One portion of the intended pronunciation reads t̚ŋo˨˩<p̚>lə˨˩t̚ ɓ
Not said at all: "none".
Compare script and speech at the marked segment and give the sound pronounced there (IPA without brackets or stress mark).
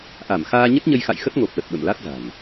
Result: p̚